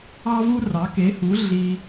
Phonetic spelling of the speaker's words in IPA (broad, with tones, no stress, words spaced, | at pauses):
ɑ˥vu˥rɑ˩˥ ke˩˥hu˩˥ ɮi˧